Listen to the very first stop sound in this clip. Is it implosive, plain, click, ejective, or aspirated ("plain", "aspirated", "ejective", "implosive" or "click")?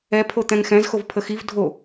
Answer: aspirated